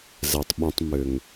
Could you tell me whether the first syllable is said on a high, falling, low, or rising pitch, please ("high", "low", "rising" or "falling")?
low